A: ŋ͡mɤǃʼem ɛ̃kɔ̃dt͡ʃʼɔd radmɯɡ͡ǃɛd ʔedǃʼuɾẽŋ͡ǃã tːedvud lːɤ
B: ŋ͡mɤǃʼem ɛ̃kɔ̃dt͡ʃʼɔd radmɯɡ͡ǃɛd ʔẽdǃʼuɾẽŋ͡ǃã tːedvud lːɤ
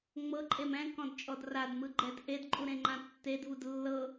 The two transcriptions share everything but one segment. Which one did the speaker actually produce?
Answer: A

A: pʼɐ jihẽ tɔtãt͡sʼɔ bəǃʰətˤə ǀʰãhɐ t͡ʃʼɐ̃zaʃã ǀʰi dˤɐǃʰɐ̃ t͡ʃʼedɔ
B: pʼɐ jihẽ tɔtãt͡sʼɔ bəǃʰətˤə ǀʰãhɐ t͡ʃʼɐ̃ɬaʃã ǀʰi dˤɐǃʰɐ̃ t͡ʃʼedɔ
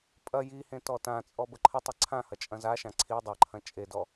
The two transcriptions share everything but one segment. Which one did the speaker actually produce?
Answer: A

